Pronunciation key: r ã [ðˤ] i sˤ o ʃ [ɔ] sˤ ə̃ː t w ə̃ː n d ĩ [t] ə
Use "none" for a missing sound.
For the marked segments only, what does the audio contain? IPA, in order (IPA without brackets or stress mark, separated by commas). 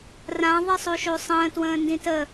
ðˤ, o, t